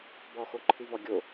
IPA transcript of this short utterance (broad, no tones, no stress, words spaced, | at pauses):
bɔxoǃʰɨvɔ ɡʲo